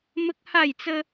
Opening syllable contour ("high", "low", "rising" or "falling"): high